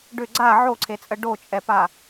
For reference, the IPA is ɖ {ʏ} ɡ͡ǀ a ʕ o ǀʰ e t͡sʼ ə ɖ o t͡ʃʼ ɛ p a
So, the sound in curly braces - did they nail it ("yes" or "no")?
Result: yes